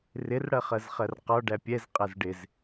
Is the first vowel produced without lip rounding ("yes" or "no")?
yes